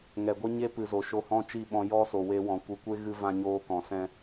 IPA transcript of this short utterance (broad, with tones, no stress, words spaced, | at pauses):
ŋɛ˨ɡʷe˦ɲe˦ pɨ˨zo˨ ʃo˧hɔ̃˦t͡ʃi˦˨ɓɔ̃˧ jɔ˧ so˨we˧wɔ̃˨ kʷɨ˨kʷe˦ɣɨ˧ vã˧ɲoː˧kɔ̃˨sɛ̃˧